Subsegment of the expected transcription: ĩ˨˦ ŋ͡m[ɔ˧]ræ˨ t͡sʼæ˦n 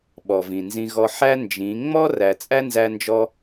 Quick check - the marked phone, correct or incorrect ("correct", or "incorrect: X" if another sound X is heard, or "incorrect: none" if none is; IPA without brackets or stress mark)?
incorrect: ɔ˦